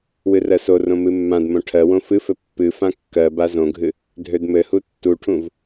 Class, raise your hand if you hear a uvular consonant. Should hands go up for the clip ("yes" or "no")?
no